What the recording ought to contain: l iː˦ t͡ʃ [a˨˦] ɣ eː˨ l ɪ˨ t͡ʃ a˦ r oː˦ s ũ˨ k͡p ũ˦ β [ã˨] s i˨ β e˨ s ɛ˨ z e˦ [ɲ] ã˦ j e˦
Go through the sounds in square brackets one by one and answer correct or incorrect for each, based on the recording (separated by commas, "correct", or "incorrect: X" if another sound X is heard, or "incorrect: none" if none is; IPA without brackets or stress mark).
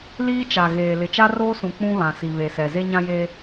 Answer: incorrect: a˨, correct, correct